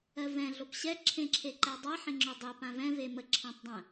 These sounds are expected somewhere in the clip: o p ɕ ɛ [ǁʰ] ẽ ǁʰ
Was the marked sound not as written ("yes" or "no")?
no